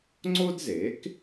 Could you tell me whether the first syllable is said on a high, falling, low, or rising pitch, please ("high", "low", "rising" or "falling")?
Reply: high